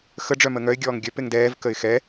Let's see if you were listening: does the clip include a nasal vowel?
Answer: no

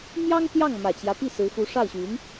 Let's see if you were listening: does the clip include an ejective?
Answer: no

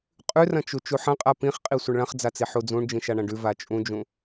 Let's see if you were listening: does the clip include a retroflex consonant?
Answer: yes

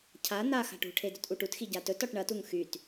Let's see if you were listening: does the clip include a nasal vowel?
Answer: no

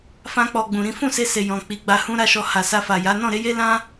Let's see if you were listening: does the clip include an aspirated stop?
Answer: no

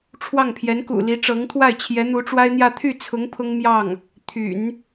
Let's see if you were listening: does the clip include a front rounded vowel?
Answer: yes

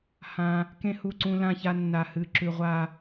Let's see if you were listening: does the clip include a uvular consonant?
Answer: yes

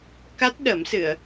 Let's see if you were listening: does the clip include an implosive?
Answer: yes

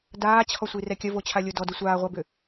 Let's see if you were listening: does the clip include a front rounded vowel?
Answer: yes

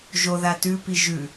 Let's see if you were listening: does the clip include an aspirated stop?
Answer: no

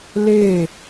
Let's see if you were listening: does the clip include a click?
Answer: no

